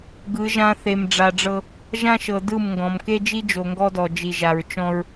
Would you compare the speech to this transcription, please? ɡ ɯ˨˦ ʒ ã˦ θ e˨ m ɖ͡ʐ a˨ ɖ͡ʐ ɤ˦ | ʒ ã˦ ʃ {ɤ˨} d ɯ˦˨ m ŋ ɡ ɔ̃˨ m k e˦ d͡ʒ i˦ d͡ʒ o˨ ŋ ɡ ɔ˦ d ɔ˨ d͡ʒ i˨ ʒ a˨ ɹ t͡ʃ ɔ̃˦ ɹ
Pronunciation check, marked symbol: correct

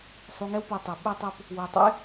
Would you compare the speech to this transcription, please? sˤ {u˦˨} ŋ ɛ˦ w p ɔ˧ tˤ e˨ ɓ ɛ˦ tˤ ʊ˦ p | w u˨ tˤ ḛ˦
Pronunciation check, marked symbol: incorrect: u˧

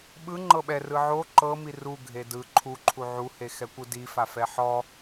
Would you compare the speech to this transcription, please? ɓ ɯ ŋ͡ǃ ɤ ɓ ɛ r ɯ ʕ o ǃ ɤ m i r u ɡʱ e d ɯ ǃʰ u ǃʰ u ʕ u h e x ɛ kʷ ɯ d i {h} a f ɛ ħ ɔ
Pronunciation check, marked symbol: incorrect: f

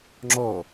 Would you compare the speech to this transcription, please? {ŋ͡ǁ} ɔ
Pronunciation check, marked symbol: correct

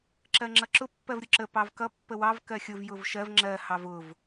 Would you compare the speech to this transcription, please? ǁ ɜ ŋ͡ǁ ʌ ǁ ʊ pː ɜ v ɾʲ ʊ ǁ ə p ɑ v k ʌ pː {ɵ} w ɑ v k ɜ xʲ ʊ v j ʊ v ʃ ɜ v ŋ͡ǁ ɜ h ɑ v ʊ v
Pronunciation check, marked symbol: incorrect: ə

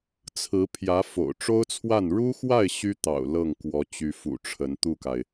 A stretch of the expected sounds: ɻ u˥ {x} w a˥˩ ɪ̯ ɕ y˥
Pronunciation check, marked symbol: correct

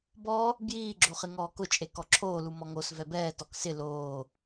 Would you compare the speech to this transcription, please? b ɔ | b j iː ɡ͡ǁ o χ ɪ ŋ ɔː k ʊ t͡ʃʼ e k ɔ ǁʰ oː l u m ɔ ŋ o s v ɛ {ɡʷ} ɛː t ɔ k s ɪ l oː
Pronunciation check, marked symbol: incorrect: b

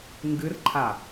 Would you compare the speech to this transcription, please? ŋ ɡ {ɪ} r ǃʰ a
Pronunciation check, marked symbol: incorrect: ɨ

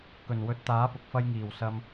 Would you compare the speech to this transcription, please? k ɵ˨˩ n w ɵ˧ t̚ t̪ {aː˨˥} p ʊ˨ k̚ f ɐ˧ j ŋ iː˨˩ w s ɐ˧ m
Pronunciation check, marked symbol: correct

